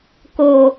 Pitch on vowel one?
low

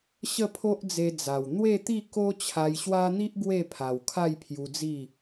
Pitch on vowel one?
falling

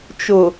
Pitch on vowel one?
low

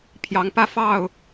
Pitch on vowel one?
rising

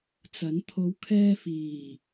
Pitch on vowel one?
rising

